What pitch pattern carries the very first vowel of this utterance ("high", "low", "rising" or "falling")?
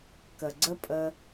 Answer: low